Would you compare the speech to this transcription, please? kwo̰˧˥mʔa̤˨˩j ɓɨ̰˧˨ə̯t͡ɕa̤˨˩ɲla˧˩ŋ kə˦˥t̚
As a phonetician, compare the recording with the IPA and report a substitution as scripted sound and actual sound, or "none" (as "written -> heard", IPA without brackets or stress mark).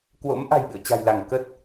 ɲ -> j